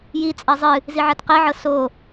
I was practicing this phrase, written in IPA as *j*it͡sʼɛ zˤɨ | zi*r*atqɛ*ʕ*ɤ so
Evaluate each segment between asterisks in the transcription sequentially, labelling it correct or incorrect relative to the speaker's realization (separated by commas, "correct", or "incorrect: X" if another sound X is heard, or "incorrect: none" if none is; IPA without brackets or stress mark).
correct, incorrect: ʕ, correct